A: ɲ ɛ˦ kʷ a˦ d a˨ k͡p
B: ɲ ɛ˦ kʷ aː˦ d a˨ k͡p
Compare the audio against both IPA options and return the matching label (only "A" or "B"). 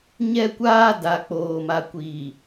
B